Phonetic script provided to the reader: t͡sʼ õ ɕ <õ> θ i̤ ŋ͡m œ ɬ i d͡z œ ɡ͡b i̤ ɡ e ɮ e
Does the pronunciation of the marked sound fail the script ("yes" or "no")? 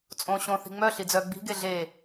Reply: no